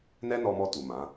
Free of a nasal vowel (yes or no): no